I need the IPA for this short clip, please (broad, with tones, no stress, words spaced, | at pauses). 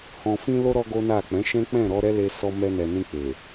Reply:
hɔ̃˨fĩ˧lo˧ ɾɔ˦ɡo˦na˦˨ k͡pɛ̃˨˦ʃɛ̃˦ k͡pɛ̃˦˨ɾɔ˧ɾɛ˦le˧ sɔ˧ mɛ˧nɛ˨ nĩ˧k͡pe˨